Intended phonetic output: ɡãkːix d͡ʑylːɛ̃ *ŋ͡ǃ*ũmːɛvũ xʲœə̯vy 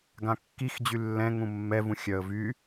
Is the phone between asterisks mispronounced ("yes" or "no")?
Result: yes